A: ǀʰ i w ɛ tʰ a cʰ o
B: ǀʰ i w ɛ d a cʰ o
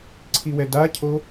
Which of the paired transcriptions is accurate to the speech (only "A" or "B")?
B